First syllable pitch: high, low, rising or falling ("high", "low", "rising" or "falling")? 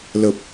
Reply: low